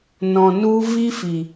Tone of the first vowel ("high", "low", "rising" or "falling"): low